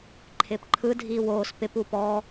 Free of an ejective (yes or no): yes